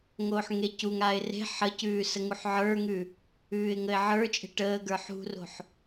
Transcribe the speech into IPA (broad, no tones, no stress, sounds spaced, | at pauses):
ŋ oː ħ ŋ e c u ŋ aː ɪ̯ r e̤ ħ ə c ʉː s ə ŋ u ħ ʕ ə˞ ŋ ʉ | ʉː ɪ̯ ŋ ə ɪ̯ ʕ ə˞ t͡ʃʼ e̤ ʈ əː ɡ ə˞ ħ ṳ r o̤ ħ